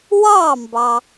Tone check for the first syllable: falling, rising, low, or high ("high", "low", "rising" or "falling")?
falling